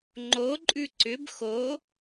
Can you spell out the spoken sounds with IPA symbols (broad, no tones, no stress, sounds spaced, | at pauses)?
ŋ͡ǃ o ǃʼ ʉ ǀ ʏ b x o